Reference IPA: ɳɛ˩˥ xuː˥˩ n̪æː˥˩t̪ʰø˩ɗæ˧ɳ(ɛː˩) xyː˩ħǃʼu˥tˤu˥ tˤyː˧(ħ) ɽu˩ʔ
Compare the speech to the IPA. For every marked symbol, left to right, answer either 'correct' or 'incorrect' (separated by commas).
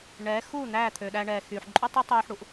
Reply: correct, correct